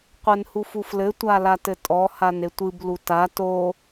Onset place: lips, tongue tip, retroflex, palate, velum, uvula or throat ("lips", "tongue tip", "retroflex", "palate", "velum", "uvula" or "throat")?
uvula